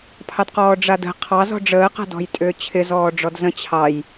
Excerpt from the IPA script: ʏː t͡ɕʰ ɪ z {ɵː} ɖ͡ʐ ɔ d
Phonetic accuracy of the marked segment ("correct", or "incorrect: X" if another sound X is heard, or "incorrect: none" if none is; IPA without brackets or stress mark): incorrect: ɔː